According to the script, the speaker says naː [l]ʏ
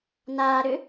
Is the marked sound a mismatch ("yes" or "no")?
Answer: yes